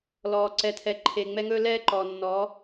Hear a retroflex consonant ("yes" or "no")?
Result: no